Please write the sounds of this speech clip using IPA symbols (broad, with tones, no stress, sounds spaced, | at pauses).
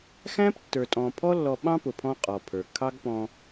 x æ̃˦ p tː ə˞˨ tʼ ɔ̃˨ pʰ ɔ˦ lː ɔ˧ ɓ ɑ̃˦ p ʊ˨ pʰ ɔ̃˦ qʼ ɔ˨ pʰ ə˞˨ kʰ ɑ˦ ɡ p ɔ̃˧